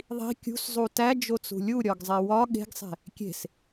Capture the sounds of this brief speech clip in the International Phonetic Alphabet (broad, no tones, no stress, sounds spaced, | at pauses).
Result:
ðˤ i̤ kʲ ṳ s zˤ u t æ d͡ʒ o t͡s ṳ lʲ u ɾʲ ɒ ɡ zˤ e w ɒ ɠ e̤ ɡ sˤ e̤ | kʲ e̤ s